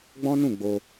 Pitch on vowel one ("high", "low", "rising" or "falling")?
high